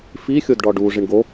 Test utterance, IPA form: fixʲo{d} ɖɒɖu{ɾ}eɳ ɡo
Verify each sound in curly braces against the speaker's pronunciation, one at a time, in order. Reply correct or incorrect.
correct, incorrect: ʐ

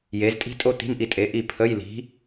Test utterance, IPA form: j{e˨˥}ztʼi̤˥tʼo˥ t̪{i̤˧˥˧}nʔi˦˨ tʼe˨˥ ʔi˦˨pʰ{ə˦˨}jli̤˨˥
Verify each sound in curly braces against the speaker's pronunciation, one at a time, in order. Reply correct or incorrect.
correct, correct, incorrect: ə˧˥˧

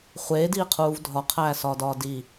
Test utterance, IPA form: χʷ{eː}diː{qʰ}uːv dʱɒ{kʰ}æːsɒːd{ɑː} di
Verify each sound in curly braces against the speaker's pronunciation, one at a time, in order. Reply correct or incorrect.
correct, correct, incorrect: qʰ, incorrect: ɒː

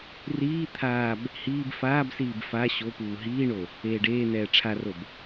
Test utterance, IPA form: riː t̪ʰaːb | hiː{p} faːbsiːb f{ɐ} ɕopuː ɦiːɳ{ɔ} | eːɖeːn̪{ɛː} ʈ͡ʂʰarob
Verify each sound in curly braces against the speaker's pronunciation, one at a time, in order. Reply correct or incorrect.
incorrect: b, incorrect: a, incorrect: o, correct

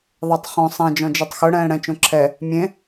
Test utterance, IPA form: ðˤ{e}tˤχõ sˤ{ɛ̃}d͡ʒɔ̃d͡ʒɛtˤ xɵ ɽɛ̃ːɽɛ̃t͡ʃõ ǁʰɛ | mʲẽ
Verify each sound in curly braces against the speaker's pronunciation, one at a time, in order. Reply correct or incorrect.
correct, correct

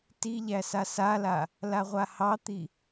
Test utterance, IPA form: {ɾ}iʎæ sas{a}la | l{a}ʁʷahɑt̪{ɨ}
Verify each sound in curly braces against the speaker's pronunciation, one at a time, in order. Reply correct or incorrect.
incorrect: t, correct, correct, incorrect: i

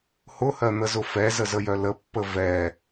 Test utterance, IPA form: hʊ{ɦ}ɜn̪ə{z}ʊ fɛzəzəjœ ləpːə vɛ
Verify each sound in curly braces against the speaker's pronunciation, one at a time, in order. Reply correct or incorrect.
incorrect: h, correct

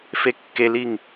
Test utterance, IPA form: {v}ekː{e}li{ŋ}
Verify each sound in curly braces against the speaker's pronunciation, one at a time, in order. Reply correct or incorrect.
incorrect: f, correct, correct

